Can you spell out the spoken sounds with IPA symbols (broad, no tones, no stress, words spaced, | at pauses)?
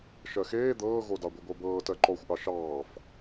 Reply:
ʃɜxeː d̪ɤːɣodɑ ɡʷiɡʷɜbɤː tɜǃɔxʷʔɑ ʃɑːf